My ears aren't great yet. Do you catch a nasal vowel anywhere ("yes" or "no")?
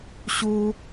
no